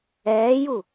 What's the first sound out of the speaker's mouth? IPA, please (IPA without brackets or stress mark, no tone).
ɛː